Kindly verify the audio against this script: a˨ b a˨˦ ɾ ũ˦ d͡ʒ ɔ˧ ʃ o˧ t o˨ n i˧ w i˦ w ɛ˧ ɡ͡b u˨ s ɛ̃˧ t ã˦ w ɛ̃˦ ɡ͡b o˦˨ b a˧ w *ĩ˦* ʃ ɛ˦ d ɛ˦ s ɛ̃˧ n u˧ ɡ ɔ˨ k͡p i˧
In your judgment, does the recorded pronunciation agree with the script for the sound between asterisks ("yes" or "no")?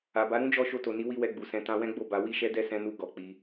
no